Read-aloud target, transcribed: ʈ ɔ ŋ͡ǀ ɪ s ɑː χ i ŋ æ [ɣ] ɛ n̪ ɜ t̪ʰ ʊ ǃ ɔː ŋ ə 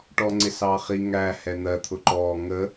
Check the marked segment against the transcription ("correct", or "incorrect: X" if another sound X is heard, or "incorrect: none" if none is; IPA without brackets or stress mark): incorrect: h